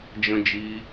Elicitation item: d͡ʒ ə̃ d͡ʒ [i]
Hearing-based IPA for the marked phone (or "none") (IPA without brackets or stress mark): i